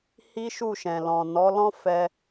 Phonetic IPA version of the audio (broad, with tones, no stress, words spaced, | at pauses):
hi˦ʃu˦˨ʃɛ̃˨lɔ̃˨ nɔ˨˦lɔ̃˦ fɛ˧